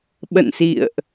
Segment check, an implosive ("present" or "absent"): present